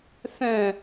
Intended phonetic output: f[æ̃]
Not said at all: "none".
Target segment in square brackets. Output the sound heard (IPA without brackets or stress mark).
œ̃